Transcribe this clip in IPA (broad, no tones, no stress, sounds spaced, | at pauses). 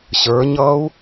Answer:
ɕ ə˞ ɲ ʌ u̯